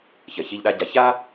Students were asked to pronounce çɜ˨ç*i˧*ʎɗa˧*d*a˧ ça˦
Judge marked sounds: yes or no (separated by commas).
yes, no